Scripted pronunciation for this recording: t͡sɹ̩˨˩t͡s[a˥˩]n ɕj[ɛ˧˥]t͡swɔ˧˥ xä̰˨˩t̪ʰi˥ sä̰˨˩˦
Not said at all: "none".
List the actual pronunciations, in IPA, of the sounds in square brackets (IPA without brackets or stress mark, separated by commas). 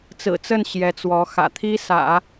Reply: ə˥˩, ɛ˧˥